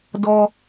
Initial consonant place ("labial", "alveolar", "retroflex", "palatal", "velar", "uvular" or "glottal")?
alveolar